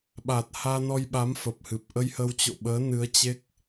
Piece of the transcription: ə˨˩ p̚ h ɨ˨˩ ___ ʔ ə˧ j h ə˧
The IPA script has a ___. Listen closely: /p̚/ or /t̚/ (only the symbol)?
p̚